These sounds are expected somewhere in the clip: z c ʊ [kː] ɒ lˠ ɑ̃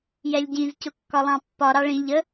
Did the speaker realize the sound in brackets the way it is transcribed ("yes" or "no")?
yes